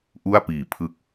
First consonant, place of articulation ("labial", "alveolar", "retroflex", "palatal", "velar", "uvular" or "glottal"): glottal